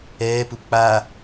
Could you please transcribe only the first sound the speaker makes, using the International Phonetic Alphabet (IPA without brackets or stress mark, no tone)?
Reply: ɛː